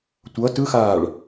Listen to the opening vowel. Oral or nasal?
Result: oral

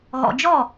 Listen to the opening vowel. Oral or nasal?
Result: oral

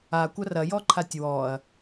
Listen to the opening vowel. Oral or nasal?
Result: oral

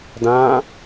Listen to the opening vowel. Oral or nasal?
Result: nasal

